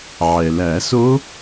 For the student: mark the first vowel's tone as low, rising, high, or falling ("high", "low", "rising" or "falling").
low